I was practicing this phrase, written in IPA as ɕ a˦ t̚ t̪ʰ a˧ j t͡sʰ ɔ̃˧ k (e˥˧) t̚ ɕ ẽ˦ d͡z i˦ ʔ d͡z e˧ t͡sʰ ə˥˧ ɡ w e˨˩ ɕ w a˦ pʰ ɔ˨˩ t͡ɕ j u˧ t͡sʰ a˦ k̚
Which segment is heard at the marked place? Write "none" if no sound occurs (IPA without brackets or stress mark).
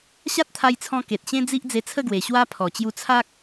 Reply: e˨